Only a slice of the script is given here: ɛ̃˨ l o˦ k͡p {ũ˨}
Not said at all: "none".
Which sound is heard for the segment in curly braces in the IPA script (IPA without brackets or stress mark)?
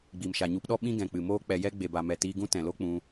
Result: ũ˧